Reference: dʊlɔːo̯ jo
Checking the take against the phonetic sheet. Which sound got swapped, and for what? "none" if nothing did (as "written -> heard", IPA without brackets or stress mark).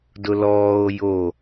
none